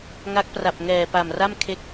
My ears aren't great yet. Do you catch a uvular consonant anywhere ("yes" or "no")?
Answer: no